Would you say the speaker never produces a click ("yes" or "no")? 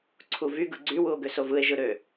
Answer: no